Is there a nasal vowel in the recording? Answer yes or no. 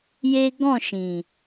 yes